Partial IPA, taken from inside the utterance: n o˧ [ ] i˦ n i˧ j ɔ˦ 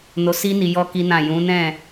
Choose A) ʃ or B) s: B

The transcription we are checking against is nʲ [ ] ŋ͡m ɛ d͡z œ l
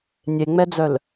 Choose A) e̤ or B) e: B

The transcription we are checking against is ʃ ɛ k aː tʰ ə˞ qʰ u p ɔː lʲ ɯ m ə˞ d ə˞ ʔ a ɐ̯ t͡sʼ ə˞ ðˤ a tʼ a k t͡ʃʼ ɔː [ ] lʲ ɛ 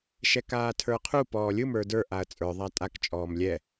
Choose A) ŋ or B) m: B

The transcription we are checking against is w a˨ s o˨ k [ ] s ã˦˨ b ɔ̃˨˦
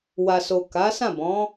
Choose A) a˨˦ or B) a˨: A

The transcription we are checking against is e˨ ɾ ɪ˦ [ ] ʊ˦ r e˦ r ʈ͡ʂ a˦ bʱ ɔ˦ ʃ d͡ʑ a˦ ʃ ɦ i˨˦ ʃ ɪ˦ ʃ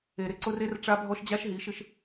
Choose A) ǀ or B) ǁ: A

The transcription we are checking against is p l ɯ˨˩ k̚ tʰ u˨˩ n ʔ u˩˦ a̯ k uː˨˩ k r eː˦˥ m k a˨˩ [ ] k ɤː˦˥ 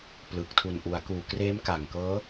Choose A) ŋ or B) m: A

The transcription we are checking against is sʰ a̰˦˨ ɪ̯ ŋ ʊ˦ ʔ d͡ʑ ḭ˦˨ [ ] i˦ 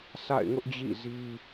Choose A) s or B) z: B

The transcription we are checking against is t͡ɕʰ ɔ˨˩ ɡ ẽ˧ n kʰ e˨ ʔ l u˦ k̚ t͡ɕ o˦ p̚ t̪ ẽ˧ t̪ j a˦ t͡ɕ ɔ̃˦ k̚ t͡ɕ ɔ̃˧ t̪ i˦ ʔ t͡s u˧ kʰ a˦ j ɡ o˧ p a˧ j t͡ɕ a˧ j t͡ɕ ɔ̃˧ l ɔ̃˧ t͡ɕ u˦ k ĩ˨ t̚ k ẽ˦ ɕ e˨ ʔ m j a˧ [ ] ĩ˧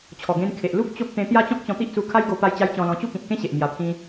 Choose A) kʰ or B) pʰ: B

